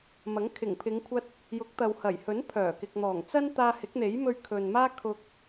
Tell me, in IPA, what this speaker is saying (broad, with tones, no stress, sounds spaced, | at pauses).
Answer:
m ɐ˨˥ ŋ kʰ ɪ˨˩ ŋ pʰ ɪ˨˧ ŋ kʷʰ ɐ˧ t̚ | j ʊ˨˥ k̚ t̪ ɐ˨ w h ɐ˨˩ j h ɵ˨˥ n pʰ œː˨˩ k ɪ˨ k̚ n̪ ɔː˨˩ ŋ t͡s ɐ˥ n t̪ aː˧ h ɪ˨˥ k̚ n̪ e˨˥ j m ɵ˧ ɥ kʰ ɵ˨ n m aː˥ kʰ ʊ˧ k̚